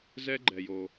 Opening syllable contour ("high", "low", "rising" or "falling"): high